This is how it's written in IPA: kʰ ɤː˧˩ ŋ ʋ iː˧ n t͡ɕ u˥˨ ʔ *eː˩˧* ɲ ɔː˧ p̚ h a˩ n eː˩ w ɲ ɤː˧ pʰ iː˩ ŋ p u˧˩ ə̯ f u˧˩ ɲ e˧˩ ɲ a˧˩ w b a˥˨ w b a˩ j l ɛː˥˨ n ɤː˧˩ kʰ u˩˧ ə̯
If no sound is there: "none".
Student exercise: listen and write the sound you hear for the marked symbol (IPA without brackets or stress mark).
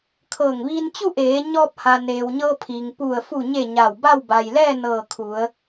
eː˩˧